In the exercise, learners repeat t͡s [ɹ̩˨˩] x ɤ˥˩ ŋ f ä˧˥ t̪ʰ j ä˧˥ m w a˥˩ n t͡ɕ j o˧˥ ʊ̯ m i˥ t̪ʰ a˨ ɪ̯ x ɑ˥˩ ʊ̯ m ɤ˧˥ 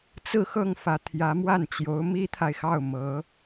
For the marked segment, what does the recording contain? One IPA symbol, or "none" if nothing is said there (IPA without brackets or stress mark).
ɹ̩˥˧